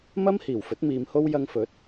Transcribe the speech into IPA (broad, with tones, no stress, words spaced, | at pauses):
mɐ˥mhiː˨˩wfɵ˨˥t̚ miː˧mho˥w jɐ˧ŋfɵ˨˥t̚